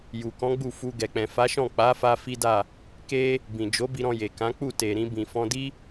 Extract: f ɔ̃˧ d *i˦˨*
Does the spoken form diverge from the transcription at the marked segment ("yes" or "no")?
yes